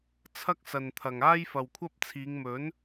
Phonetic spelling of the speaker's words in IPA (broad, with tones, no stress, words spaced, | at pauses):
t͡sʰɐ˥k̚sɐ˨nt̪ʰɐ˨ŋ aː˥jfɐ˨wkʷʰɐ˥p̚t͡sʰiː˨˧ŋ mɵ˨˥n